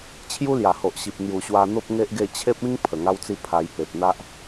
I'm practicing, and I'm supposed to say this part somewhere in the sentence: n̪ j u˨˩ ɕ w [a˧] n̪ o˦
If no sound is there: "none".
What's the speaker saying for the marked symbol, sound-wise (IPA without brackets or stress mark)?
a˧